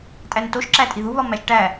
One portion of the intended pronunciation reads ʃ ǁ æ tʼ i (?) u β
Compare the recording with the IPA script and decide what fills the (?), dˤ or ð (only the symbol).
ð